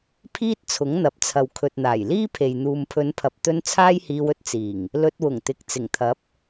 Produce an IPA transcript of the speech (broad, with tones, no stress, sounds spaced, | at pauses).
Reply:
pʰ iː˥ t̚ t͡sʰ ʊ˨˥ ŋ n̪ ɐ˨ p̚ t͡sʰ ɐ˨ w kʰ ɵ˨ t̚ n̪ aː˨˩ j l iː˥ pʰ e˨ j n̪ uː˨ m pʰ ɵ˨˧ n pʰ ɐ˨ p̚ t̪ ɵ˧ n t͡sʰ aː˥ j h iː˧ w ɵ˥ t̚ t͡s iː˨˩ ŋ | l ɵ˧ t̚ w ʊ˨˩ ŋ t̪ ɪ˨ k̚ t͡s ɪ˨˩ ŋ t̪ʰ ɐ˨˥ p̚